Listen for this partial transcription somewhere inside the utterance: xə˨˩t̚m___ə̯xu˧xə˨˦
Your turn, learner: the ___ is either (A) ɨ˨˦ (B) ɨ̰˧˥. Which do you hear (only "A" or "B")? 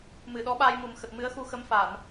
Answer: A